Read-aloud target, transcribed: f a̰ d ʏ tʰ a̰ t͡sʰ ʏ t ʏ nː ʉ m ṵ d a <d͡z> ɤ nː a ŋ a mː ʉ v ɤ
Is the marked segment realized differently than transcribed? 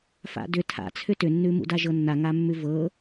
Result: yes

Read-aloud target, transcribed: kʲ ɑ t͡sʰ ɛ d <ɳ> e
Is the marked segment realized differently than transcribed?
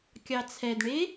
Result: no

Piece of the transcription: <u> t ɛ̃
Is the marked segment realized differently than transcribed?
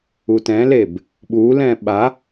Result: no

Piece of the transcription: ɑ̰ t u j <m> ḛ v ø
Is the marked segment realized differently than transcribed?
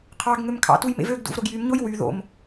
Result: no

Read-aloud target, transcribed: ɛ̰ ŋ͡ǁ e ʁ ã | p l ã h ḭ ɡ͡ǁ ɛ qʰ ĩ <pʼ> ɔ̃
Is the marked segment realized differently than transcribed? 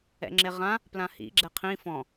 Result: yes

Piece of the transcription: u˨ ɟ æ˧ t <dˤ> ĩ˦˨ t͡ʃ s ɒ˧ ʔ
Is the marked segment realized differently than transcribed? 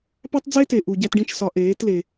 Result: yes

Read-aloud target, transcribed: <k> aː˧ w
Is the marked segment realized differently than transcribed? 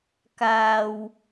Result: no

